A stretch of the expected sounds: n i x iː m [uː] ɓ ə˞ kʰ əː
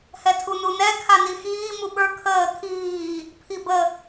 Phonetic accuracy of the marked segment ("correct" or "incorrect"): incorrect